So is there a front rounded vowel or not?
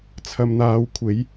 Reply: no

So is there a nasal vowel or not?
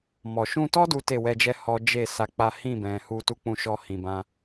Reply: yes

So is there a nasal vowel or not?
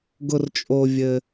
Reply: no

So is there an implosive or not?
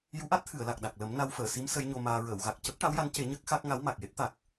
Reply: yes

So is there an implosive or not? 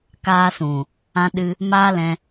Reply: yes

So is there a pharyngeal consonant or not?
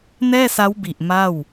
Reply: no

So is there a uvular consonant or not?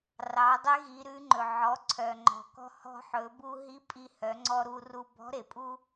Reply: no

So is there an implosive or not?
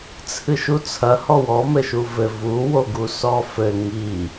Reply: no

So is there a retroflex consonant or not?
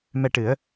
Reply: yes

